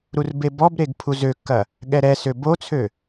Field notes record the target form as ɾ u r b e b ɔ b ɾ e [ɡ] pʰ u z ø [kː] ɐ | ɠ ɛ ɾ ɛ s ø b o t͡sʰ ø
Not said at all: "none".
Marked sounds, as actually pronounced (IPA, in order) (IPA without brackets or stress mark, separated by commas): ɡ, kː